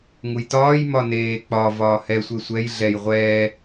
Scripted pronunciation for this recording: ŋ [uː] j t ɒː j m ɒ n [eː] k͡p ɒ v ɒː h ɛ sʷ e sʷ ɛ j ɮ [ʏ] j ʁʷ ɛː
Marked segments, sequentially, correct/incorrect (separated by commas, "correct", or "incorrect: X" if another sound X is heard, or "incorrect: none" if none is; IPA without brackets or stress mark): incorrect: u, correct, incorrect: ɛ